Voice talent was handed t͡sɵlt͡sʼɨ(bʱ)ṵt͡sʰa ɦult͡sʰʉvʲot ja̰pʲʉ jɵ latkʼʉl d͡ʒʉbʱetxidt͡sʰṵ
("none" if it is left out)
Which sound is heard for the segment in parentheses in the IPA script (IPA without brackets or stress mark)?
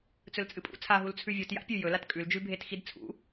pʼ